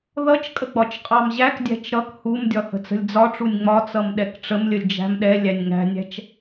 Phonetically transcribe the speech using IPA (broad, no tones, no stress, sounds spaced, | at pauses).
ð ʌ t͡ʃ kʼ ə ɡ͡b ɒ t͡ʃ qʼ ɑ m ʑ æ k dʲ æ̤ t͡ʃ ɾ ʌ k h u m dʲ ɒ h ə̤ t͡s ə̤ lʲ d͡z ɒ ʈ͡ʂ u nʲ ŋ͡m ɒ t͡s ʌ m ɗ ɛ k ʈ͡ʂ ə m lʲ ə lʲ d͡ʒ æ̤ m ɗ ɛ lʲ æ nʲ ŋ æ̤ nʲ æ̤ t͡ʃ